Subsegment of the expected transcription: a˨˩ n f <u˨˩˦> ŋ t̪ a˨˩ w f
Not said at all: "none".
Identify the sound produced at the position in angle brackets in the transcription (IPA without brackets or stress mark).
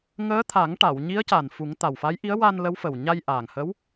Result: u˨˩˦